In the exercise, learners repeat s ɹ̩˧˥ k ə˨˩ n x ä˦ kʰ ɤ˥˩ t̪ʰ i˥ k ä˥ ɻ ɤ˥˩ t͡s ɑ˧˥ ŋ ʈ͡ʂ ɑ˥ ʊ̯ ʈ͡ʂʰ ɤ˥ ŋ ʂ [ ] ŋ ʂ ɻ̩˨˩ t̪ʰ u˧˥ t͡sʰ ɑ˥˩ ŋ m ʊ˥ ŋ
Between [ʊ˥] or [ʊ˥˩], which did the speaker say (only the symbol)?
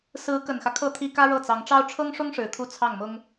ʊ˥